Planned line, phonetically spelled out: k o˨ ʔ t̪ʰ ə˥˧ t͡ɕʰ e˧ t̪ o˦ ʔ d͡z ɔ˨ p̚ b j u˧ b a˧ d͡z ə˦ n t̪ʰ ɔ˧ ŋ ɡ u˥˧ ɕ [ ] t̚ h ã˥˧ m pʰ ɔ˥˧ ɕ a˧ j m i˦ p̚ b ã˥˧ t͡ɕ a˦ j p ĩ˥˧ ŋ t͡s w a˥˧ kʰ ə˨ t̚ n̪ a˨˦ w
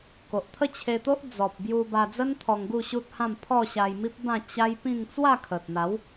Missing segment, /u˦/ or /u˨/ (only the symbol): u˦